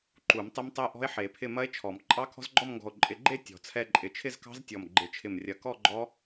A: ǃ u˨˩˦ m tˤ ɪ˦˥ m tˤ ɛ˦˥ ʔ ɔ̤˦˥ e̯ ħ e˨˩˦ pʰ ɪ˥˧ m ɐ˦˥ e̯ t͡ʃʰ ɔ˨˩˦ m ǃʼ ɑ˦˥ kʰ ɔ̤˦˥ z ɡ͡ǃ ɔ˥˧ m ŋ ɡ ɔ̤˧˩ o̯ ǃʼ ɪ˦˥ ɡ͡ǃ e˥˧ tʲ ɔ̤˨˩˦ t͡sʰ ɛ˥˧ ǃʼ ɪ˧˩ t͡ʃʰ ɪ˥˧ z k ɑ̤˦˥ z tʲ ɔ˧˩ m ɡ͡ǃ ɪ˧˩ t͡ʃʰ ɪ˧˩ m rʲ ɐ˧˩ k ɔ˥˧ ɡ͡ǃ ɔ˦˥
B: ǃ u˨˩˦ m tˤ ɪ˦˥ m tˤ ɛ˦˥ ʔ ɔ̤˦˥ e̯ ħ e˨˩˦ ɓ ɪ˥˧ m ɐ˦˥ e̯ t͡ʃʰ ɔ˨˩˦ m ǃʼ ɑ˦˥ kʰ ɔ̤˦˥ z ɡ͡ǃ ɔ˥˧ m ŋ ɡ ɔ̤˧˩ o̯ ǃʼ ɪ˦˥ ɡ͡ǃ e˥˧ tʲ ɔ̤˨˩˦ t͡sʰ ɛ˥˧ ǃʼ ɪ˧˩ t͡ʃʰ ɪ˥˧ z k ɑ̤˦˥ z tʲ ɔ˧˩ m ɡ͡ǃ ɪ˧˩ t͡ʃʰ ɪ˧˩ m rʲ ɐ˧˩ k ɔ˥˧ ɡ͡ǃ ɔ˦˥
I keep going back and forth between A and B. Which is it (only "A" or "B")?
A